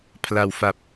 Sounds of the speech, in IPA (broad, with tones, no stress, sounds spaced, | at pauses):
pʰ l a˩˦ w f a˨˩ p̚